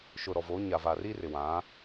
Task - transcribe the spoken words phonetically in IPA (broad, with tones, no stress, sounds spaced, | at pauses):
ʃ ʊ˨ ɾ ɔ˨ v o˨˦ ɲ a˨ v a˨ r i˦ r ɪ˨ w ã˨˦